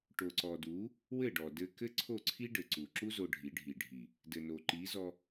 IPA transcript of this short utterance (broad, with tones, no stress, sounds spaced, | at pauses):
ʈ o˨ ǀ ɔ˨ d u˨˦ | w ɘ˦˨ ɖ ɔ˨ d ɘ˧ k ɘ˦ ǀʰ o˦˨ ǀʰ i˦ ɖ ɘ˨ ǀ u˨ ǁ u˦ z o˧ ɖʱ i˨˦ ɖʱ i˨ ɖʱ i˨ | d ɘ˨ n o˨ ǃ i˨˦ z ɔ˧